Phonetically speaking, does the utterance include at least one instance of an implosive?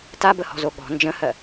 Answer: yes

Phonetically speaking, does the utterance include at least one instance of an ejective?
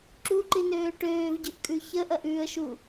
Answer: yes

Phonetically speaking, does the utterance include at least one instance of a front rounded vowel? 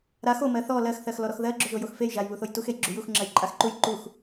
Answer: no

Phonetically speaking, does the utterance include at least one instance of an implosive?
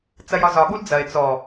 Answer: yes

